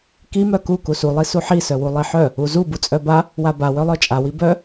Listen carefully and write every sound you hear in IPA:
k i m œ k u k u s u lˠ i s u ħ i s œ w u lˠ i ħ œ | u z u b u t͡sʼ œ b a | w a b a w œ lˠ œ t͡ʃʼ a w i b œ

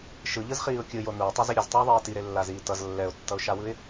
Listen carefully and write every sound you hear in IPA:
ʃ ɯ ʎ ɯ z χ iː ʊ̯ kʲ ɯ j o n u ɪ̯ tˤ ʌ z i ɾʲ ʌ z tˤ ʌ ʊ̯ ðˤ iː t i ɾ e lː a z iː t ʌ z lː ɛ ʊ̯ tː ʌ ʊ̯ ʃ a w ɯ ɪ̯

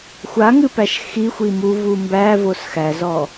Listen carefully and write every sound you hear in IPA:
xʷ a ŋ ɨ p æ ʃ x i xʷ i m u v u m b æ v o s x æ z ɔ

